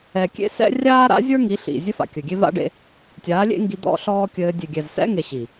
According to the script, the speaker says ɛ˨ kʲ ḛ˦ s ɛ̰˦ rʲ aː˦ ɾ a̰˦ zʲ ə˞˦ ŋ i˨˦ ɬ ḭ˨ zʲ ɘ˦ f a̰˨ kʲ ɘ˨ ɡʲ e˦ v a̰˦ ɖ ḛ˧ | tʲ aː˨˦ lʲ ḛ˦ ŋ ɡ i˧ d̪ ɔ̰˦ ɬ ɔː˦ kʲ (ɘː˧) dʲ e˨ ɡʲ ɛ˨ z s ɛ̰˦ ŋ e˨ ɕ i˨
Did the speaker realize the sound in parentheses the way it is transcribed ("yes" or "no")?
yes